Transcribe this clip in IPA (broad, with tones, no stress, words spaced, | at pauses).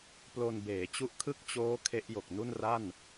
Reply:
plo˧nbeː˩˦t͡ɕu˦˥ʔkʰɯ˥˩k̚ t͡ɕoː˦˥ kʰe˦˥ʔjo˨˩k̚nu˥˩nra˥˩n